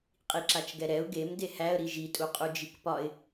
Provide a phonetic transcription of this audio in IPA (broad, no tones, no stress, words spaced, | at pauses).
qʼiǁat͡ʃɡɛɾɛʊ̯ ɡem dehæə̯ɾi ʒitʼu qʼud͡ʒikpɒɪ̯